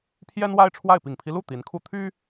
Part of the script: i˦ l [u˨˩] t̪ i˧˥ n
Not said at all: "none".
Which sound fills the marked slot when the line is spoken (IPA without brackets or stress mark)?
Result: u˥˩